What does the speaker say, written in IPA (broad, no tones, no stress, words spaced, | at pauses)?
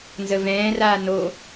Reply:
nzəvɛ̃ːraː no